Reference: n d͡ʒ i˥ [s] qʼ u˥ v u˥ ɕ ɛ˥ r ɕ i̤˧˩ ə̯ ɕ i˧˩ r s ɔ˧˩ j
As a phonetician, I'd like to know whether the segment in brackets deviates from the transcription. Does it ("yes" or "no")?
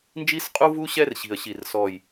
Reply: no